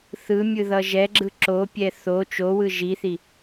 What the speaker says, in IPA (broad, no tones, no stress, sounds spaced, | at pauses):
θ ɯ mʲ ɯ ð ʌ ʒ ɛ ɡ͡ǁ ɯ ǁ o pʲ ɛ θ o t͡ʃ o w ɯ ʒ i θ i